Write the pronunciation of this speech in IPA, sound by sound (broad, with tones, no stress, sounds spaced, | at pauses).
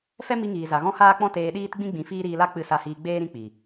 f ɛ˦ m i˧ ŋ iː˨ z a˨ ɣ ɔ̃˦ h aː˦ k͡p ɔ̃˦ t eː˧ ɗ iː˦ t ɡ͡b ĩ˦ ɡ͡b ĩ˧ f iː˦ ɾ iː˧ l a˦ k͡p ɨ˧ s a˧ h iː˧ ɡ͡b eː˦ ɾ ĩ˧ k͡p i˨